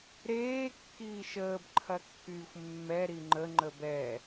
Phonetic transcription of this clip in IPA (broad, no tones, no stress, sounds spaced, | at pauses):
ɾ eː kː iː ʃ əː b ǃʰ ɐ kː yː xʷ mː ɛ ɾ i ŋ͡ǃ ə ŋ͡ǃ ə b ɛ